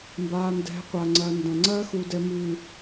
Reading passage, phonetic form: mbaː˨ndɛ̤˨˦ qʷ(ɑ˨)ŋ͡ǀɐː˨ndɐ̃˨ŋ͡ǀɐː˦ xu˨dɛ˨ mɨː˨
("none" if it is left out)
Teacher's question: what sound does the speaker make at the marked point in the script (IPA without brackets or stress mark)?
a˨